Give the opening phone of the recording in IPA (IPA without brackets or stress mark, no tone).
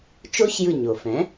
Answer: t͡ʃ